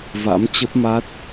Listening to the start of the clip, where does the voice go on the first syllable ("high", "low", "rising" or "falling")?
rising